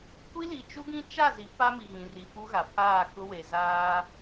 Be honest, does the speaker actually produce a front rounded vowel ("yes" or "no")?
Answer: no